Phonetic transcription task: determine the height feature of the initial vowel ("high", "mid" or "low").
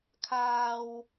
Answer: low